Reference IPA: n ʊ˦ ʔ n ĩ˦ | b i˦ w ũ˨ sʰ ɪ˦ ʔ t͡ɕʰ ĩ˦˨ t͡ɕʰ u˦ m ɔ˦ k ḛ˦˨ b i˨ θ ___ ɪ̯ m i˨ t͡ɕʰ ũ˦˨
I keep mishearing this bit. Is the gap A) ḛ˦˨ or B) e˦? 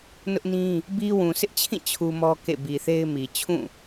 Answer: B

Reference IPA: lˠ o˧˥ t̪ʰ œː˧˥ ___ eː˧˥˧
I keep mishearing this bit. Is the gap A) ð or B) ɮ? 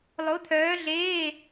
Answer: B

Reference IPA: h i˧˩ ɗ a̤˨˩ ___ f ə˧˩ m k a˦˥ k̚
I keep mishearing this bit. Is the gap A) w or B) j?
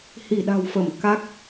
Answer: A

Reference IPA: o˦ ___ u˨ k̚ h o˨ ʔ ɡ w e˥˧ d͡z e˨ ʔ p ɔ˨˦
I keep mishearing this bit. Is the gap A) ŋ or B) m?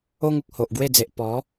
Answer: A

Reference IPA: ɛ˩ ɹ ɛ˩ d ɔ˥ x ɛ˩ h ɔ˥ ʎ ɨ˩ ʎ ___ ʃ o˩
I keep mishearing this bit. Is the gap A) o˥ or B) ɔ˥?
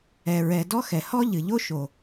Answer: A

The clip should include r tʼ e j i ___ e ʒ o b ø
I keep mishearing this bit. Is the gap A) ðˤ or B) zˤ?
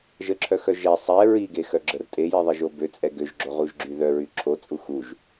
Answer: A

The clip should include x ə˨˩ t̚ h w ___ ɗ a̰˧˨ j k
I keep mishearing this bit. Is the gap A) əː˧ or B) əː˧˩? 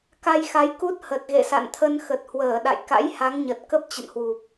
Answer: B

